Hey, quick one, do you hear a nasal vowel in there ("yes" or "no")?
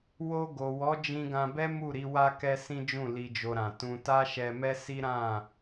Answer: yes